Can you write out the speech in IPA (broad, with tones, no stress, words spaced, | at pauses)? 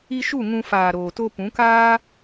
i˧ʃu˦˨ ŋũ˧ faː˨ɾoː˨to˧ pũ˨˦kaː˦